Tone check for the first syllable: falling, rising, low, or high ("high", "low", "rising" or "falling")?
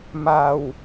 low